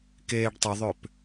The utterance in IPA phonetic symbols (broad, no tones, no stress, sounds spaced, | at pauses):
k eː ɖ tˤ ə ðˤ ø p